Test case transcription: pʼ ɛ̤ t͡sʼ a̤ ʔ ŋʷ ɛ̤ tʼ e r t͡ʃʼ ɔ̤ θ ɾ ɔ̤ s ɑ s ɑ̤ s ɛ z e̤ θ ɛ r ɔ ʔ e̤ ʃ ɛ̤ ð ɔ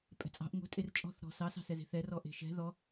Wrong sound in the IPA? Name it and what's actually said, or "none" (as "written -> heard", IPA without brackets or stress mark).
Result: a̤ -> ɑ̤